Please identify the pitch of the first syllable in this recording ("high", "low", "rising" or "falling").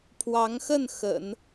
rising